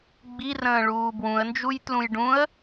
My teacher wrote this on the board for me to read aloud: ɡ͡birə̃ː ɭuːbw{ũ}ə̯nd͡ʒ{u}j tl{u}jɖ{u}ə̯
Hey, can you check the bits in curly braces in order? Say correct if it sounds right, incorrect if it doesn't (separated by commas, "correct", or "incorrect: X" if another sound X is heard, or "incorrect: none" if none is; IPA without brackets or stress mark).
correct, correct, incorrect: ũ, incorrect: ũ